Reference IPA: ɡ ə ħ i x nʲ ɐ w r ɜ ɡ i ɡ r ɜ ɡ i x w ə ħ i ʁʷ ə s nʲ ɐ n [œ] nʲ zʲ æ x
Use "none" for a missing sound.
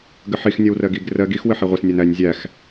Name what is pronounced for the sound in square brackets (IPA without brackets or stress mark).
æ